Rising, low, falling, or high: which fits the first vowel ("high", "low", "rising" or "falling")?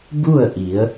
falling